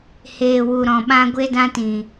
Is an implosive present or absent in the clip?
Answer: present